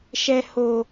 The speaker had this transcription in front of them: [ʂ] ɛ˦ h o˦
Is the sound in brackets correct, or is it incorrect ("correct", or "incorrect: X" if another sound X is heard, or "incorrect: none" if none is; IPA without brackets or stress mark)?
incorrect: ʃ